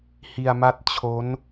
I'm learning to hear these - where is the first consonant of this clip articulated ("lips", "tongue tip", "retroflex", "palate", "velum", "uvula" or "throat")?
throat